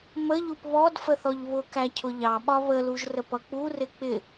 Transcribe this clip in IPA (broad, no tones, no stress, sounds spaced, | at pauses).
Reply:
m ə ʎ u p β ɔ d f ə θ ɔ ʎ β ʊ k æ cʰ ʊ ʎ ɑ ɓ ɒ β ə l u ʒ r ə p ʌ k͡p u r ɪ k͡p ɪ